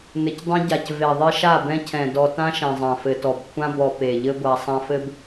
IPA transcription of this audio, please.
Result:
nɘ˨cdˤẽ˦ ɟa˨c ve˨ðˤe˦ ʃa˦˨bɛ̃˦cʰɛ̃˨ dɔ˨ tã˦ʃɛ̃˨ zˤã˨fɘ˨tɔ˨bkʷʰã˦ bɔ˨ pe˨ʎɘ˦ ɡʷa˨ sˤã˨fɘ˨b

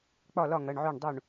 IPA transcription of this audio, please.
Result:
k͡pɒ˥˩lɒ˥˩ ŋɐ˩˧˩ɳʕø˥˩ɳdˤo˥˩ɳ

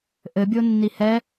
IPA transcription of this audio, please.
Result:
ʔɘbʲonːi hɛ

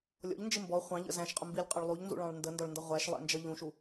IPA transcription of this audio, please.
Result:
lʲɔ̰ʎnd͡ʒɪ mbɔ χʷɑ̃ʎə̰ zæ̃ʃqʼʊmbilʲqʼɒɭ lˠuʎnzṵɭɑ̃ɭ ndəndɒɭndʌ ʁʷæʃlˠɛ̰nd͡ʒʌ ʎũʃu

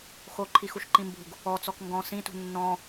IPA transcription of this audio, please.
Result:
xoǃʰixuʃǃĩ mbṳɡ | ɔt͡sɔk ŋɡɔ̃ sĩtṳ nːɔ̃

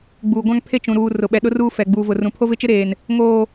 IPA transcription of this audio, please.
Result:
ɡ͡buː˨ɡʷã˦ŋpʰe˦ t͡ʃũ˨ɾuː˨ rʊ˨ɓɛ˨ɗʊ˦ruː˦ fɛ˨ɡ͡buː˨ vʊ˨rũ˨ pʰo˦vɪ˦t͡ʃɪ˦ɾeː˨n | ŋoː˨

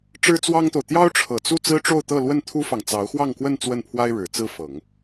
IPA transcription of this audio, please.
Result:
ʈ͡ʂɻ̩˥t͡swɑ˥ŋt̪o˨ʊ̯ t̪jɑ˥ʊ̯ʈ͡ʂʰɤ˨˩t͡su˥˩ t͡sɹ̩˥ʈ͡ʂo˥˧ʊ̯t̪ɤ˥˧lwə˥˩n t̪ʰu˥fɑ˨ŋ t͡sɑ˧˥ʊ̯xwɑ˥˧ŋkwə˥˧n t͡swə˥˩npʰwa˥ɪ̯ɻɻ̩˨˩ t͡sɹ̩˥˩fɤ˨˩˦ŋ

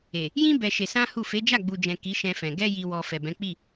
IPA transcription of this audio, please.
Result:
e˨ | jĩ˦ bɛ˧ʃe˧sã˦hu˦˨ fe˨˦d͡ʒa˦˨ɡ͡bu˨d͡ʒɛ̃˨ ki˨˦ʃɛ̃˧fɛ̃˨ ɡɛ˧ji˨wɔ˨ fɛ˨bɛ̃˨˦k͡pi˦˨

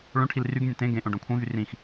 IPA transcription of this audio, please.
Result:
ɭõʈʰil ryɡnʲɛ̃ tẽ ɡẽʔõ ɖõkʷʰẽvy rĩx

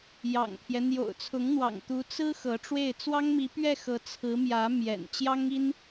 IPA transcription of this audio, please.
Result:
jɑ̰˨˩ŋpʰjɛ˦ n̪jo̰˨˩ʊ̯t͡sʰʊ˧˥ŋn̪wɑ̰˨˩ŋt̪u˧˥ t͡sɹ̩˥ xɤ˧˥ʈ͡ʂwe˥˩ɪ̯ t͡swɑ˥ŋmi˧˥pɥɛ˥˩xɤ˧˥ t͡sʰɹ̩˧˥mjä˧˥ mjɛ̰˨˩n t͡ɕjɑ˥ŋi˥n

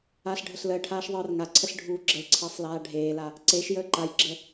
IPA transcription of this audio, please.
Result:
aːɬɖʱəɬləːʈʰaːʃ ðˤɯːrŋaǀʰəɬ ɖʱuːɡ͡ǁəlǀʰəːsˤ laːɖʱeːla | ǀeʃ jəːǃajɡ͡ǁə

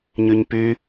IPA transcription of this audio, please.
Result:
ɲyɲpy

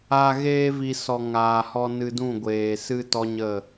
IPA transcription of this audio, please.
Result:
a˨ ɣeː˧vi˨ sɔ˨ ŋaː˨hɔ˧nɨ˧dũ˦˨ ɡʷeː˨sɨ˦tɔ˦ ɲə˦˨

